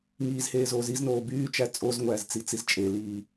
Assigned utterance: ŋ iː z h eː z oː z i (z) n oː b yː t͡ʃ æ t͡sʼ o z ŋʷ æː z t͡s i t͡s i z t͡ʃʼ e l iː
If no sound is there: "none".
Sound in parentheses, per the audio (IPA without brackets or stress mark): z